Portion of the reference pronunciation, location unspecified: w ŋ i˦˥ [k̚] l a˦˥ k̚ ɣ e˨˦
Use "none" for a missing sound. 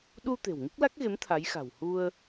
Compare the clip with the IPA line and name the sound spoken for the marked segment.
k̚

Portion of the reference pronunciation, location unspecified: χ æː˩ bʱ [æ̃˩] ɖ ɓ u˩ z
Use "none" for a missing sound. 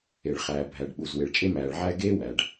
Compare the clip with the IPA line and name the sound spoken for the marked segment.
æ˩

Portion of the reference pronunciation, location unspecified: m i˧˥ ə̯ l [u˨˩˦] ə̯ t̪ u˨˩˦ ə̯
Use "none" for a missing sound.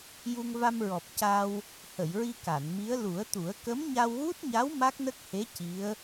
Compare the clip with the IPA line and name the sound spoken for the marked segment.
u˨˩˦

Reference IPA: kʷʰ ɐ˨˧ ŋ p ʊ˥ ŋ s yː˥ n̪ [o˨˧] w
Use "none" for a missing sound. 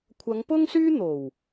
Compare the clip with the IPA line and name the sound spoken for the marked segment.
o˨˩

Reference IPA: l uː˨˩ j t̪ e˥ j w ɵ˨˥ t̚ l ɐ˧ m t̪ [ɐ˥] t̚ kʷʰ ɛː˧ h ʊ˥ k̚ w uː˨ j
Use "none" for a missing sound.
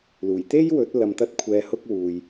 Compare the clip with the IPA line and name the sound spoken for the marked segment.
ɐ˥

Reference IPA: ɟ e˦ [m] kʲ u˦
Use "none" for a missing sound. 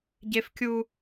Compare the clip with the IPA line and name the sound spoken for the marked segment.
f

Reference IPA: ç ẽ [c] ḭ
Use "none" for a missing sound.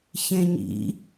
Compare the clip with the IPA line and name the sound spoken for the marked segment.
ɲ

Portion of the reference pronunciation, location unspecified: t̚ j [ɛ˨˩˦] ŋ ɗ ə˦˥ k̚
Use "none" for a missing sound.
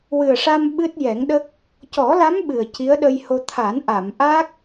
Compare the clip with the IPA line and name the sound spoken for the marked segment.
ɛ˨˩˦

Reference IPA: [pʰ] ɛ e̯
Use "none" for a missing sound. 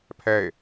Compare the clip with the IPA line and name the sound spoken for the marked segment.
pʰ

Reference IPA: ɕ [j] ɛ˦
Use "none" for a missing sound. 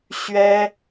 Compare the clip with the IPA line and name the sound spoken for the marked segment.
ɥ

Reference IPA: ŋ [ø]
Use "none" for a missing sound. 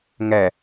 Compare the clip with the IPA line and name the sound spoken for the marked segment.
ɛ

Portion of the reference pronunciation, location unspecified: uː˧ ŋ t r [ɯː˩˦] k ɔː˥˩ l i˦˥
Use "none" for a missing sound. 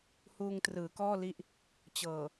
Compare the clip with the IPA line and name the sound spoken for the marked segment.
ɯː˩˦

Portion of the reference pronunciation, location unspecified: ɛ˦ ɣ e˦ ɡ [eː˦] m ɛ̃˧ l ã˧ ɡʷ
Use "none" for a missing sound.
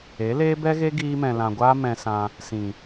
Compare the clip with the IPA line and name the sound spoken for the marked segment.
iː˦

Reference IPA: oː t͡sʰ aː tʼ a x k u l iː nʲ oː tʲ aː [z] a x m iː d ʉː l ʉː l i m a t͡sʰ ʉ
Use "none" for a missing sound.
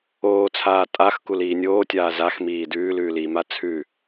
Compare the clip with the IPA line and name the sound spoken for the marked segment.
z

